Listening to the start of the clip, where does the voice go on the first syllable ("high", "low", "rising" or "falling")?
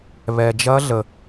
low